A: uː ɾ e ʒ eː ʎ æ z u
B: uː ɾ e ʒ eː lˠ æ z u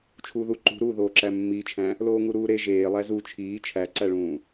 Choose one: B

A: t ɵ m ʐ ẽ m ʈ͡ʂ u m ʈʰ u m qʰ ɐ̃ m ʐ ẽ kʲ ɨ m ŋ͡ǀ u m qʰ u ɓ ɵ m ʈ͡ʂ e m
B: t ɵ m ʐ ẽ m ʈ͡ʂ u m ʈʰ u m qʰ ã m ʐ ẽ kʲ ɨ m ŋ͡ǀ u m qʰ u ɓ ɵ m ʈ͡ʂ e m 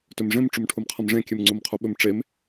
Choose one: A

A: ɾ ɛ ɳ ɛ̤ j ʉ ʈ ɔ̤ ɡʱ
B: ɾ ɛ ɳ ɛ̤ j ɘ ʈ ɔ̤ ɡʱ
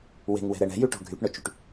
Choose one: A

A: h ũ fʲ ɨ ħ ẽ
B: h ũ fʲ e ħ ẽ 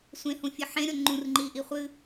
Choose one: A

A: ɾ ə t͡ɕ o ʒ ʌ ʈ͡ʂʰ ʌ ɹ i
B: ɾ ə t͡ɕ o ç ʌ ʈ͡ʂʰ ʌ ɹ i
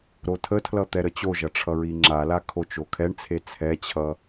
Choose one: A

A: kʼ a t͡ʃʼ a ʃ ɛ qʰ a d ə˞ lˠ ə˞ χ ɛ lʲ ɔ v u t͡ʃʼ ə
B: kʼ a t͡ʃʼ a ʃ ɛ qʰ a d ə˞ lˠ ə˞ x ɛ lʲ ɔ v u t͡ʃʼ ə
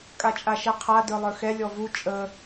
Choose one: B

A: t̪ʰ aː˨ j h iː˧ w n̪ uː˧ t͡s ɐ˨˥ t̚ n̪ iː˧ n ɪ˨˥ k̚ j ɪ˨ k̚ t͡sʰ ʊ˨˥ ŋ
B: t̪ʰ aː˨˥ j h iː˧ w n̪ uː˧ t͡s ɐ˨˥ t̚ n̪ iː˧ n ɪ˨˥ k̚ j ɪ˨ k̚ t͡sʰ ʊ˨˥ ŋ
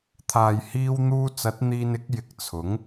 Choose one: A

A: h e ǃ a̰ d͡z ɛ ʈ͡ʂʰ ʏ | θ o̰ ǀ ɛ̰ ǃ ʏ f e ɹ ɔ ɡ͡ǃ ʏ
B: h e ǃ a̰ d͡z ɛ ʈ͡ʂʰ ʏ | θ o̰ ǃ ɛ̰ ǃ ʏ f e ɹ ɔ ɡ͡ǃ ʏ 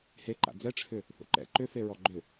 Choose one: B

